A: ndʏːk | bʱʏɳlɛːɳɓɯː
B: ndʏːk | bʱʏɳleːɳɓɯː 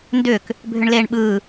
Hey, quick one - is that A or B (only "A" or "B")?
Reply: B